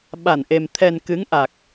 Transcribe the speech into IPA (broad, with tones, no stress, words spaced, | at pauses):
ɓa˧˩nʔe˨˩m t̪ʰɛ˨˩n kɨ˨˦ŋʔa˨˩k̚